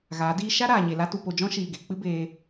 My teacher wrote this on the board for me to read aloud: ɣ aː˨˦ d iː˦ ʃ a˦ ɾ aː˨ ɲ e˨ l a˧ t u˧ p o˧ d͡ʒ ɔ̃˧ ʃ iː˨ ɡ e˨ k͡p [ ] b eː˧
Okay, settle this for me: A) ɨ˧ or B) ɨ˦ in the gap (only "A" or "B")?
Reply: B